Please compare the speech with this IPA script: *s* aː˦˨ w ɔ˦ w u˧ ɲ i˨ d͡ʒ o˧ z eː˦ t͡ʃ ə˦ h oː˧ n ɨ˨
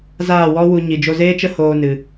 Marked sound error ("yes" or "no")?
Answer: yes